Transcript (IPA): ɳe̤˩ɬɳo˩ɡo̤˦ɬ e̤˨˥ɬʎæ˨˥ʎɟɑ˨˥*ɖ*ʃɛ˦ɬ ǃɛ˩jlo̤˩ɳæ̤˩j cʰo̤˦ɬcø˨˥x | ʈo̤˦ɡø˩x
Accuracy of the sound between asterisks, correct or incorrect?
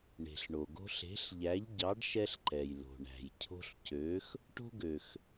correct